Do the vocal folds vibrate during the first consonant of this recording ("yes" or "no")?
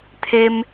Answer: no